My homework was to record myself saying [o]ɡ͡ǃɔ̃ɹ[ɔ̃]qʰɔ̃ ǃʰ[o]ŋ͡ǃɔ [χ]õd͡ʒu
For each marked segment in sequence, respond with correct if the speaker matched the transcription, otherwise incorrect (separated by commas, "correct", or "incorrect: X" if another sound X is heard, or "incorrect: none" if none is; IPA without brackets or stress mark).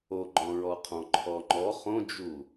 correct, incorrect: ɔ, incorrect: ɔ, correct